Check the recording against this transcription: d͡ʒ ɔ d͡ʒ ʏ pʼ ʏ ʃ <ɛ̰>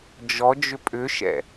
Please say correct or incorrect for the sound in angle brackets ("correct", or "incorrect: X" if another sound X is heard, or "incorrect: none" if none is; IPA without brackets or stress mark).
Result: correct